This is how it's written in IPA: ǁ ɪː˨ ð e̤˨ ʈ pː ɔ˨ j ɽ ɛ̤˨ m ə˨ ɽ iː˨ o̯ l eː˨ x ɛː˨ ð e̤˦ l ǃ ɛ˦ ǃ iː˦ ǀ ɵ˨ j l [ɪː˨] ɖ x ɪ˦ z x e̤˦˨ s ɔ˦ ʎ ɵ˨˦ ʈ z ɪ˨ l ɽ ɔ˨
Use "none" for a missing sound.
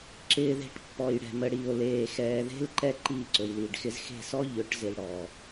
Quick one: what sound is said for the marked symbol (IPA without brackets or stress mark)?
iː˨